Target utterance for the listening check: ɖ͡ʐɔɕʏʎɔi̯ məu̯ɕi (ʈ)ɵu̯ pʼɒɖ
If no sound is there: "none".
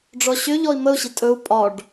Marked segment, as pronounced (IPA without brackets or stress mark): tʼ